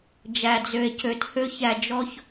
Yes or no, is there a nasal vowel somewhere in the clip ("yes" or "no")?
no